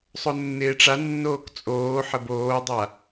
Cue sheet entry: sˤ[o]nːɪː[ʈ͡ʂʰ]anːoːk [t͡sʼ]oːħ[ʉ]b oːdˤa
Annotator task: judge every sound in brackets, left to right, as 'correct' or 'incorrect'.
correct, incorrect, correct, incorrect

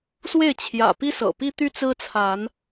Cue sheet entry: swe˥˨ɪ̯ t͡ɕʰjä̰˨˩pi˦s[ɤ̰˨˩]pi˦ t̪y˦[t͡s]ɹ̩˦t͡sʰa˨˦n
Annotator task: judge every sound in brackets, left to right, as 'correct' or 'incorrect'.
correct, correct

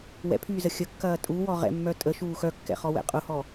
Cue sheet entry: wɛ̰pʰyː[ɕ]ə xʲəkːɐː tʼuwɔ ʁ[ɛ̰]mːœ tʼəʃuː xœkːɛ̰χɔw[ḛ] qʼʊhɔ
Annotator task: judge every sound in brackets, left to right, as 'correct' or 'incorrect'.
incorrect, correct, incorrect

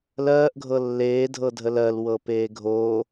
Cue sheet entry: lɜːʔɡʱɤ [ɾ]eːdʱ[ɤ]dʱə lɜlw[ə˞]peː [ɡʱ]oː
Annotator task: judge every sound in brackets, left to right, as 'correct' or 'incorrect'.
incorrect, correct, incorrect, correct

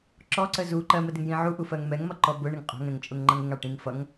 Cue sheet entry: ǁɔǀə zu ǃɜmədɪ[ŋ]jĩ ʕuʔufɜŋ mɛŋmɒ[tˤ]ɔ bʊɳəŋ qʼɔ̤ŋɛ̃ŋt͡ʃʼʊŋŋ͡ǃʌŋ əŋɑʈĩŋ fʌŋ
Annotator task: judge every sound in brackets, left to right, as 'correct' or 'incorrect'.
correct, incorrect

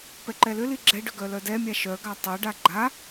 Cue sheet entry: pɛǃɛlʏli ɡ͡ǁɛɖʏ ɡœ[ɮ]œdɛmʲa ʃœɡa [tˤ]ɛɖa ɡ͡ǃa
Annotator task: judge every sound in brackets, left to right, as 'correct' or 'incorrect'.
incorrect, correct

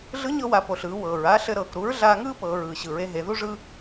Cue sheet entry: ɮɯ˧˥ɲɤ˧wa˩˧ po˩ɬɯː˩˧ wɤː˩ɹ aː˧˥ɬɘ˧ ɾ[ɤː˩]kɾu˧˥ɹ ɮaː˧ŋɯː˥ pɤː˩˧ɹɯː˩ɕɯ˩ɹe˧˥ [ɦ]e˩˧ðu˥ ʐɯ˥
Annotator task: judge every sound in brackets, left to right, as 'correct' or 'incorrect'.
correct, correct

